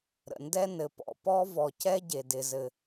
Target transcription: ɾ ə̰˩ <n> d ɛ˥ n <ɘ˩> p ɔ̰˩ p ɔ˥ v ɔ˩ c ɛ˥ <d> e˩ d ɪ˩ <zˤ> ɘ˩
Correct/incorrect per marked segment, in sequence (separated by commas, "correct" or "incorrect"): correct, correct, incorrect, incorrect